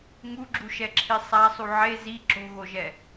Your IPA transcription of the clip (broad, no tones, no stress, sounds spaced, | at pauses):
ŋ u ɡ͡ǁ u ʃ ɛ ǁʰ i sˤ a sˤ u ʕ e z i ǁ o̤ ɣ o ʒ ɛ